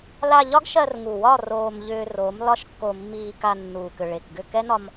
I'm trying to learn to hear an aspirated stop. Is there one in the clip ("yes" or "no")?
no